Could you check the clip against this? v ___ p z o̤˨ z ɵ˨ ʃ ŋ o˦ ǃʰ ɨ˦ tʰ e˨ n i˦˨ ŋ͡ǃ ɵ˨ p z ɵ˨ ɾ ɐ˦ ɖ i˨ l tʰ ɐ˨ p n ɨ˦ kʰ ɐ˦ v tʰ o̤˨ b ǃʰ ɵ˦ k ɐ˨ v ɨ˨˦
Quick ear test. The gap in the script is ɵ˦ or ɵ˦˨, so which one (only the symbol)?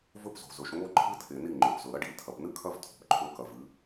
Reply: ɵ˦